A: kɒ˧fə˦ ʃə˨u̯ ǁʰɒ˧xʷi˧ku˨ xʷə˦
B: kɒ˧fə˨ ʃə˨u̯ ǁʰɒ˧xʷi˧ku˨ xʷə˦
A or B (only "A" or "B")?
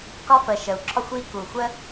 B